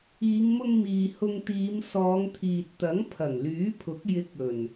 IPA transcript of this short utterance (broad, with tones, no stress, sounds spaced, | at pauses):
iː˨˧ ŋ m ʊ˧ ŋ m iː˨ h ʊ˧ ŋ t̪ iː˨˧ m s ɔː˨˧ ŋ t̪ʰ iː˨ t̚ t̪ ɐ˨˥ ŋ pʰ ɐ˨˩ ŋ l yː˨˥ pʰ ʊ˨˥ k̚ j ɪ˨˥ k̚ ɵ˨˩ n